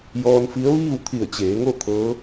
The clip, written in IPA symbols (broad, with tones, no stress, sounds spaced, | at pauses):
j ɔː˧ n f i˧˥ ə̯ ʋ iː˥˨ w t̪ʰ i˧˩ ə̯ t͡ɕ eː˩˧ ŋ o˥˨ t̪ʰ ɤː˧˥